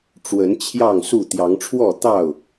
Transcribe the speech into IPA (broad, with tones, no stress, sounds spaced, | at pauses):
ʈ͡ʂ w ə˨˦ n t͡ɕʰ j ɑ˥˨ ŋ s u˥˨ t̪ j ɑ˨˦ ŋ ʈ͡ʂʰ w ɔ˥˨ t̪ ɑ˥˨ ʊ̯